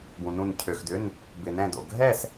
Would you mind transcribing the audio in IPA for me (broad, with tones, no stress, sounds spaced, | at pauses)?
b ũ˧ n ũ˥˧ n cʰ ø˧ x d ʏ˧˥˧ n | b ɪ˧ n ɛ̃˥˧ d o̰˧ ɡʱ ɛ˥˧ s